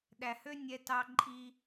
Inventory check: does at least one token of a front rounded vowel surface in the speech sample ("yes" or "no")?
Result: yes